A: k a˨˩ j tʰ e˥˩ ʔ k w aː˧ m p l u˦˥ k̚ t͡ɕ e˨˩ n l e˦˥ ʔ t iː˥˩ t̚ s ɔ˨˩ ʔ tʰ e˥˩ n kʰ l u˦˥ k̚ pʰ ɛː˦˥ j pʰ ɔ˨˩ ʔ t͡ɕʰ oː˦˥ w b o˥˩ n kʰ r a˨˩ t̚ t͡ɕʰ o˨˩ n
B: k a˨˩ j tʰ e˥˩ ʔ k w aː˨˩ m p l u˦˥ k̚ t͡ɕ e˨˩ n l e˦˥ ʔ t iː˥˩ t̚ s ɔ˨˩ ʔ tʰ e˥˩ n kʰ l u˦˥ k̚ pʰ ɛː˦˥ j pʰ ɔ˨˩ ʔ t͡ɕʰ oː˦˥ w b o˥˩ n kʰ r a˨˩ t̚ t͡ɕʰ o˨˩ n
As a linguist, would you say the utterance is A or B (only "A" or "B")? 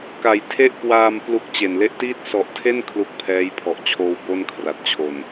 A